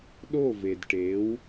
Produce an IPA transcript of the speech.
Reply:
ɗ o˥˩ v e˩ d ʈ e˩˥ w

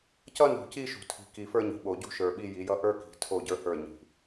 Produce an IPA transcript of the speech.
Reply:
c ʌ˦ n ṳ˨ c i˦ ʃ ṳ˨ tʰ i̤˨ k i˨ f ə˞˦ ɲ i̤˨ ɓ o˨ ɟ ṳ˦ ʃ ə˞˨ ɓ i˦ j i˨˦ j ʌ˦ ʔ ə˞˦ k i̤˨ tʰ o˦˨ ɟ ə˞˦ h ə˞˦˨ ɲ i̤˨

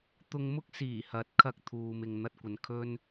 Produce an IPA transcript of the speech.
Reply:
t̪ ʊ˧ ŋ m ʊ˥ k̚ s iː˨˩ h ɐ˨˥ t̚ kʰ ɐ˧ k̚ t̪ʰ uː˨ m ɪ˨ ŋ n̪ ɐ˧ t̚ kʷ ɐ˨ n kʰ ɵ˥ n

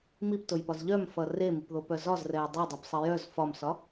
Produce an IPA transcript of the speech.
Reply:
m i p t o j p ɒ z ʎ œ m f ʌ r e m i p ð o p œ z ɒ z r ɛ j dˤ o dˤ i p sˤ ʌ j œ z f ɒ m s ɒ

